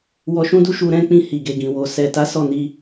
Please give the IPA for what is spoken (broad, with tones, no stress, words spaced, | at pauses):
wɔ˧ʃũ˦du˦ ʃu˧ɾɛ̃˦k͡pĩ˧ hi˨ɡe˨ɡĩ˨wo˨ sɛ˨ta˨˦ sɔ˦˨ni˧